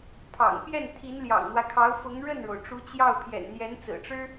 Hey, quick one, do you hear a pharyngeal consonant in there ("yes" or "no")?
no